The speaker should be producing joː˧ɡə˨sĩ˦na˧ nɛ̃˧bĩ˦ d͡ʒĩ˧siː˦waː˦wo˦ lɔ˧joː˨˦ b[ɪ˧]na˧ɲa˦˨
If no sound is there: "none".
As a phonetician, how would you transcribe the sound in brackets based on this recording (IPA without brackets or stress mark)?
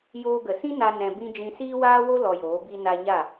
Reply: i˧